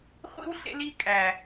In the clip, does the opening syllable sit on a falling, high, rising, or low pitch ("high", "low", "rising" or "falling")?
high